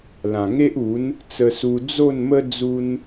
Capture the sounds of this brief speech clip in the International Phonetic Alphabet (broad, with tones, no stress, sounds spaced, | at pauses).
l ã˨˩ ŋ e˦ ʔ u˨˦ n | t͡s ə˧ s u˧ d͡z o˥˧ n m ə˦ d͡z u˦ n